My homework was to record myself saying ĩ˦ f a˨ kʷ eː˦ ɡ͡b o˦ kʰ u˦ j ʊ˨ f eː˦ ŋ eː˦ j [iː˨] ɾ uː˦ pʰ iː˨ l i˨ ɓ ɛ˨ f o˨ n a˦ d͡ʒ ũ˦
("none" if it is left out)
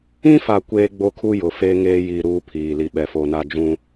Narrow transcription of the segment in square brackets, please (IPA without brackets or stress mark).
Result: iː˨